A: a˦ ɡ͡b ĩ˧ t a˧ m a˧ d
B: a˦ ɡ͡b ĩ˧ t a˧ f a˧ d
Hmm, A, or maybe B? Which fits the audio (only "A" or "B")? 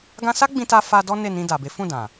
B